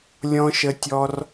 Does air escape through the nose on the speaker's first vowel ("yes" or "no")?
yes